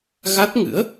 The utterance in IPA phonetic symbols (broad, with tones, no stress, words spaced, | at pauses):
ɣa˦˥t̚ŋɨ̰˧˥ə̯